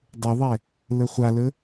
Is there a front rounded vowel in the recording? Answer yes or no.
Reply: yes